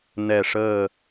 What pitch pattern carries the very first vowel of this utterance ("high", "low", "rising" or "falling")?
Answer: falling